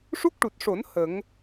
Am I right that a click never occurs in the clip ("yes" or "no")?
yes